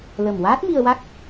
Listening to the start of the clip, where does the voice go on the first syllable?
low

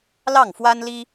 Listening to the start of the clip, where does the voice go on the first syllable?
falling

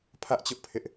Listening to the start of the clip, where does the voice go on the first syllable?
high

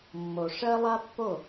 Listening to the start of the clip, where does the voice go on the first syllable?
low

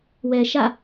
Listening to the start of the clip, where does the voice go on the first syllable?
low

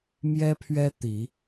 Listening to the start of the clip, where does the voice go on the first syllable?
high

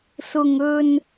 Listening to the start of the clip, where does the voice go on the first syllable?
low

